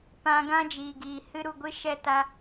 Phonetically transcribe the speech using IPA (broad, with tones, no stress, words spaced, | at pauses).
pã˧ ɡã˦d͡ʒiː˨ɡiː˨ hɨ˧ɾu˨ɡʷɨ˧ ʃɛ˧ ta˧